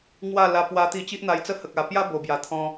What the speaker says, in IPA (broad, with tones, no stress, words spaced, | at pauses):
ŋwa˥˧ la˧pwa˧t̪i˧ t͡ɕi˦ʔn̪a˧jt͡sə˦hə˨k̚ a˨˩pja˦ bo˨˩bja˨˩t̪ʰɔ̃˧